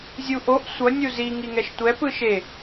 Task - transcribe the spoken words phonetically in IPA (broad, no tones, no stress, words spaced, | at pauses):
zʲuʔoʔ sʷʌ nʲuzi ŋiŋɛʃtʷɛ pɯʃe